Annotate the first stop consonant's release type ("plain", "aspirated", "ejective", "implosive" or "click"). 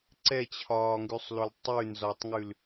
click